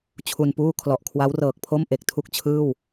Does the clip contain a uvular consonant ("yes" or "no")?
no